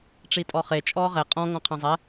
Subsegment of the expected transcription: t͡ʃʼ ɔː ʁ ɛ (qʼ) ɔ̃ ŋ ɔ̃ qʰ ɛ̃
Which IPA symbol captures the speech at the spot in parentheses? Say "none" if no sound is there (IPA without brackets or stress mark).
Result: qʼ